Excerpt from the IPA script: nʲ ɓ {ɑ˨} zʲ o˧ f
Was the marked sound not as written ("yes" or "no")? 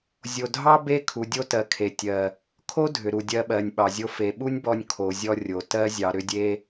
no